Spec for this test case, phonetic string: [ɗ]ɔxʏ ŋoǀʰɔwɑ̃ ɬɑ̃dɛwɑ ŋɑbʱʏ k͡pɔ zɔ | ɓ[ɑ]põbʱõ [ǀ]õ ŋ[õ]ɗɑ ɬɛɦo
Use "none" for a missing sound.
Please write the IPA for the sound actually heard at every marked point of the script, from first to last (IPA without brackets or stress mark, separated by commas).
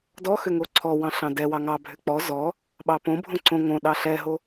d, ɑ, ǀ, õ